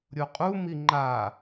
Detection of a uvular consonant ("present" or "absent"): present